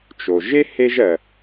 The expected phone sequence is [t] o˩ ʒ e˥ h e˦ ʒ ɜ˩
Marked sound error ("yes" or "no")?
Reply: yes